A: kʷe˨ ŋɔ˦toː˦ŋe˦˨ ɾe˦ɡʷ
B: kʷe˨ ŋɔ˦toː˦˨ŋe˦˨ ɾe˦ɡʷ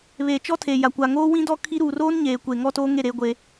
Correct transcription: A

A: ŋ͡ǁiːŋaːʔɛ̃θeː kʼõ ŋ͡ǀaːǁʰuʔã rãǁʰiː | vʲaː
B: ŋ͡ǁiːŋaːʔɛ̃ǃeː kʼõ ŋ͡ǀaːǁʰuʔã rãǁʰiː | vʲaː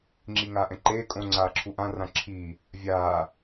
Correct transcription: B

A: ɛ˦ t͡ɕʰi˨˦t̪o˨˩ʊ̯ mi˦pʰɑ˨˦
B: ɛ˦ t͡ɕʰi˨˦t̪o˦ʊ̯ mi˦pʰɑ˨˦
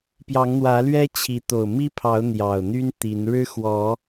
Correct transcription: A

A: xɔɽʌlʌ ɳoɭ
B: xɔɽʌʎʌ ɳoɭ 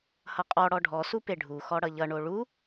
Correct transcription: B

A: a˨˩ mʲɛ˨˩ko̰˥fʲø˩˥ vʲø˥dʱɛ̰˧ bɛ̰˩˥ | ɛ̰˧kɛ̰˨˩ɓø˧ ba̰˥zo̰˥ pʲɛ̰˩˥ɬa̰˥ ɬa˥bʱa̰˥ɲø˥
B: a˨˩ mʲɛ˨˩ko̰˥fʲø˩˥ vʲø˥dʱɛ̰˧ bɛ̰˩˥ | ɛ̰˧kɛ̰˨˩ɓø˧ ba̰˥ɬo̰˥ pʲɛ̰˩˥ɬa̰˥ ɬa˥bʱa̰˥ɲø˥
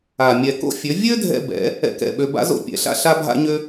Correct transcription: A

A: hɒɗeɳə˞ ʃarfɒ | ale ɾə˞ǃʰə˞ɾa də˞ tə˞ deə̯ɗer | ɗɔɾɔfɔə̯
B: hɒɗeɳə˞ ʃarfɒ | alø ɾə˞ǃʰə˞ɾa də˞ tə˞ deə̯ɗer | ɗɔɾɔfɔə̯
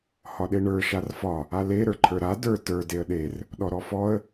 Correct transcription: A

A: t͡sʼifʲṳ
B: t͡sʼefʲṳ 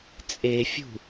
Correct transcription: B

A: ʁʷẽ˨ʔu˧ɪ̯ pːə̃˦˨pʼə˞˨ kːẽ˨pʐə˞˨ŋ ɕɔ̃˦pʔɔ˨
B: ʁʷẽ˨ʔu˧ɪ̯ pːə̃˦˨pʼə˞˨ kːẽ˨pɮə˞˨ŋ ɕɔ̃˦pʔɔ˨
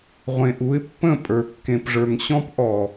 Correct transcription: A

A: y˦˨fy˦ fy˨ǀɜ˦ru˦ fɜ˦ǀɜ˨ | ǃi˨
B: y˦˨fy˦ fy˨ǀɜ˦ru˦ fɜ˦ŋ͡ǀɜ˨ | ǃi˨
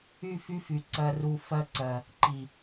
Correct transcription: A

